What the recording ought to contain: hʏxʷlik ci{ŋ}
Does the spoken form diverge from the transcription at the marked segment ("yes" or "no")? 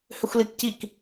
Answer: yes